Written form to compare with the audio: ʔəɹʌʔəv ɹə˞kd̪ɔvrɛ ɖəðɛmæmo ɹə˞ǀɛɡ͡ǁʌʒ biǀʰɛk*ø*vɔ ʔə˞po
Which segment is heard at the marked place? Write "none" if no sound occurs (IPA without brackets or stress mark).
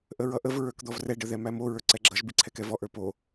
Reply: ɛ